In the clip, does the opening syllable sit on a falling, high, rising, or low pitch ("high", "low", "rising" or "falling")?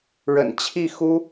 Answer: low